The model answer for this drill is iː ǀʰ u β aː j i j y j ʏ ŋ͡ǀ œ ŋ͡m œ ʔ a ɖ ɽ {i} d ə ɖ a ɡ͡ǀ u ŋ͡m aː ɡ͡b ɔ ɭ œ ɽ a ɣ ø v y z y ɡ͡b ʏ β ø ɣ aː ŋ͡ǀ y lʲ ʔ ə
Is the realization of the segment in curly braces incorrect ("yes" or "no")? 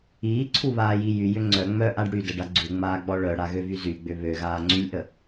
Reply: yes